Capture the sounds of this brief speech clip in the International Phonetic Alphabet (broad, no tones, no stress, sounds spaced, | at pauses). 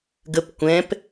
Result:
ɡ ə p kʷ ɛ̃ p